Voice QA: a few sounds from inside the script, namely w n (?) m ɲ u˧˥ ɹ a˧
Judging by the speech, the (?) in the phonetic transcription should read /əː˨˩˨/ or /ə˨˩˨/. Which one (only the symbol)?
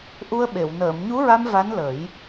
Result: əː˨˩˨